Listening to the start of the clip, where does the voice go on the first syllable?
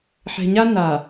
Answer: low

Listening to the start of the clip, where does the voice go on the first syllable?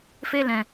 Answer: high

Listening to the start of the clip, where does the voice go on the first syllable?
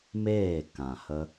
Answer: falling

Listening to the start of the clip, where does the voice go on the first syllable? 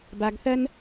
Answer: low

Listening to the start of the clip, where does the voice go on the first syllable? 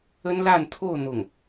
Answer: high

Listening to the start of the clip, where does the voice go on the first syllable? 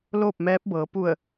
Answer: falling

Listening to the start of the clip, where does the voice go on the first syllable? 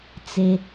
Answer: low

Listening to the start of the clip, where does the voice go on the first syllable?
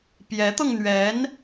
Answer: rising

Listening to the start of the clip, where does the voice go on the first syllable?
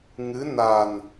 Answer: rising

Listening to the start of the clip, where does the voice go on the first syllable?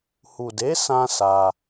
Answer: low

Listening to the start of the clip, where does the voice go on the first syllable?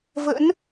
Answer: rising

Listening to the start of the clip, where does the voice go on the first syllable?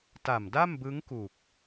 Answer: low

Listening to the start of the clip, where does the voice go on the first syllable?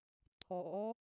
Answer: rising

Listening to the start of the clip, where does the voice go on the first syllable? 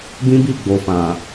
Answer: high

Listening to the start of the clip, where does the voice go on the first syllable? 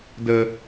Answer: low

